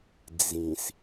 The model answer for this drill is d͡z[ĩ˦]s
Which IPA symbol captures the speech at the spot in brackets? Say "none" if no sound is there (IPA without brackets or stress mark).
ĩ˨